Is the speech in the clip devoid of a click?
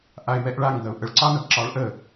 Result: no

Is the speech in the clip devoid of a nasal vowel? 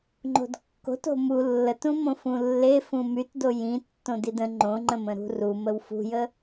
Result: no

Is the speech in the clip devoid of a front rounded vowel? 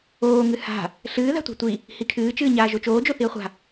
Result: yes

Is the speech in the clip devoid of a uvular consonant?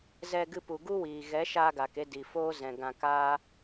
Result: yes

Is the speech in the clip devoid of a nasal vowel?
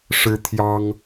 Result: yes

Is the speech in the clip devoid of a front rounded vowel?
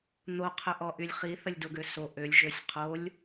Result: no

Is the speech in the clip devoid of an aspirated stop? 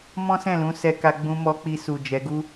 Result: yes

